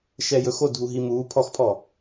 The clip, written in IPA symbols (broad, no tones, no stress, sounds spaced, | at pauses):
ʃ ɛ j ɵ x o dʱ u ɦ i m uː pʰ ɔ x pʰ ɔ